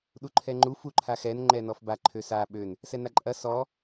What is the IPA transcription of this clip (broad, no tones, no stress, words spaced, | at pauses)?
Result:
ɗuǃʰɛŋ͡ǃu fuǃʰaxɛn ŋ͡ǃɛnɔfba ǃʰøsa ɓøn | sɛnaǃʼɐ sɔ